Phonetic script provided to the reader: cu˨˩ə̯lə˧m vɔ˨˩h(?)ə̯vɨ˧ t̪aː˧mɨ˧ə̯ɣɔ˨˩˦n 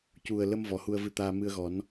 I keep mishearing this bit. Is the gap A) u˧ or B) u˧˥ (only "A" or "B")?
A